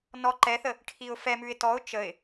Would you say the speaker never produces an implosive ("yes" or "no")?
yes